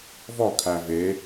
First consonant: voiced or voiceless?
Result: voiced